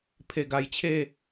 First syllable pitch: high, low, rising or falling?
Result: low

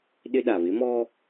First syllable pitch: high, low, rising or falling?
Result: high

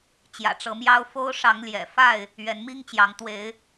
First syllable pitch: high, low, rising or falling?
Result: low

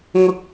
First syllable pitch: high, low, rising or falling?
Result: high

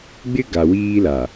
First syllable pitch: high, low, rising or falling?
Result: high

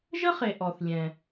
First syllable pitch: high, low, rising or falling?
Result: high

